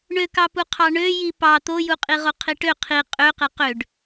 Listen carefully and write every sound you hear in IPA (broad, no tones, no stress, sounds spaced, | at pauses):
ɳ ø k ɑ p u qʰ ɑ ɳ ø j i p ɑ t̪ o j u qʼ i ʁ o qʰ i ʈ ø qʰ i qʼ ø q e q ø ɖ